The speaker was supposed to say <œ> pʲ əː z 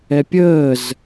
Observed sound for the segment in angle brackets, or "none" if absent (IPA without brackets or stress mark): ɛ